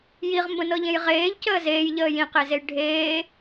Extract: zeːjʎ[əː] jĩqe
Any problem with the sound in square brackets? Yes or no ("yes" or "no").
no